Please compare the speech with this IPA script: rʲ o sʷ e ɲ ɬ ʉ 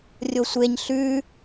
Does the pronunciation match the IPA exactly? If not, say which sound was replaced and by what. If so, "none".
none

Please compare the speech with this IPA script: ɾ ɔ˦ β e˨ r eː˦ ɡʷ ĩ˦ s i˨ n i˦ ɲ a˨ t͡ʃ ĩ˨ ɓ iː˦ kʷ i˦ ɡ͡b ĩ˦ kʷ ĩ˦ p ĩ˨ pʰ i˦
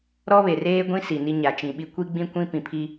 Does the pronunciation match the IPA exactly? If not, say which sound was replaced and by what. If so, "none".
iː˦ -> i˦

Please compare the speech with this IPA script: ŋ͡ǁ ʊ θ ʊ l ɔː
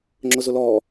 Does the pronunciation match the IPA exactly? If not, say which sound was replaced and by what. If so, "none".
θ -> z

